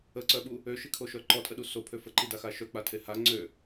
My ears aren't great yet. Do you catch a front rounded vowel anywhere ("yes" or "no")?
yes